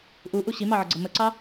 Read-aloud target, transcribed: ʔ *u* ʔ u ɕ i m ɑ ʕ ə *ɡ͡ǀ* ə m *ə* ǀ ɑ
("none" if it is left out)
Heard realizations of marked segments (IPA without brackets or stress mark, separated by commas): u, ɡ͡ǀ, ə